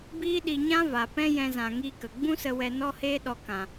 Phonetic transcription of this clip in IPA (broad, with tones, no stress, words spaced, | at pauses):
biː˦ɗi˧ ɲã˦va˨pɛ̃˦ jɛ̃˧zã˨ ŋi˧kə˨ ɡ͡bũ˦sə˧wɛ˧ nɔ˦heː˦ɗɔ˧ kã˨